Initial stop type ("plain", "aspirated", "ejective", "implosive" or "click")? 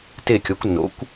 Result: plain